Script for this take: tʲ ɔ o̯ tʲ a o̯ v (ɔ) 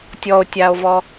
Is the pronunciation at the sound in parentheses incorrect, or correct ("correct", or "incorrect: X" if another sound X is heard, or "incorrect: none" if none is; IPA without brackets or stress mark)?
correct